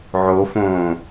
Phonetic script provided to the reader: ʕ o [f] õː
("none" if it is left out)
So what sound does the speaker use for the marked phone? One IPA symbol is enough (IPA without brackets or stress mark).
f